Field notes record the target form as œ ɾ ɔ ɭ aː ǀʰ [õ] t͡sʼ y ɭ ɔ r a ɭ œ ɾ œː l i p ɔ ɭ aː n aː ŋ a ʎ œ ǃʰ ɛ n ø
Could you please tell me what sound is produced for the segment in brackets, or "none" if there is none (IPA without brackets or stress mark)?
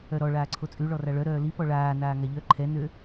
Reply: o